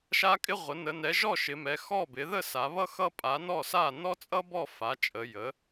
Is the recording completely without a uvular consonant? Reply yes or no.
no